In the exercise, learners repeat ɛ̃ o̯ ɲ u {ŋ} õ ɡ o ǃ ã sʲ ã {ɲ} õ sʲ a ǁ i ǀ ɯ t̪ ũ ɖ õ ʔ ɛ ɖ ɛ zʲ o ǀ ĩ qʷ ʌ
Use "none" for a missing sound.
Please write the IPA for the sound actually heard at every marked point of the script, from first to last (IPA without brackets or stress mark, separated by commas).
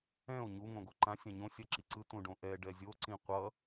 ŋ, ɲ